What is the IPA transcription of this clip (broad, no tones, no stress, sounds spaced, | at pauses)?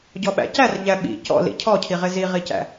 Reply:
ɟ ɔ ɓ æ̰ c æ r ʎ æ ɓ ḭ c ɔ̰ l ḭ cʰ ɔ cʰ i ʁ ɪ z i ʁ i c æ̰